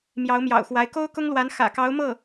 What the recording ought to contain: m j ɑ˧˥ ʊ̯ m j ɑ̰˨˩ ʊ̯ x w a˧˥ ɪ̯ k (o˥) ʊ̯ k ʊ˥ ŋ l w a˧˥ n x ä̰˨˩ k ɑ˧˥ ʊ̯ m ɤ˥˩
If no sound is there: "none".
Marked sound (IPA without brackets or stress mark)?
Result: o˥